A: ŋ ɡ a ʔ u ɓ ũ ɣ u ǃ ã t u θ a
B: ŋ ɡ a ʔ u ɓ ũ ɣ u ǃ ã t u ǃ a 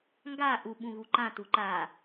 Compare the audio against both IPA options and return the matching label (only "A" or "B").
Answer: B